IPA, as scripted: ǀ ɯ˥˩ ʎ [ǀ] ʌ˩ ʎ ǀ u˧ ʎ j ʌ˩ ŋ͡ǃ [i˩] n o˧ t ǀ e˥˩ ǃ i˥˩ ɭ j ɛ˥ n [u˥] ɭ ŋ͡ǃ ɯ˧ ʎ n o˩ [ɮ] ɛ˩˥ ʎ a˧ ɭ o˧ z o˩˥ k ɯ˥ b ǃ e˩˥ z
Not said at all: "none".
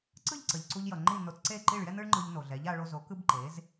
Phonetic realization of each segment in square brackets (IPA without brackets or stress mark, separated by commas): ǀ, i˥˩, ɯ˥, ɮ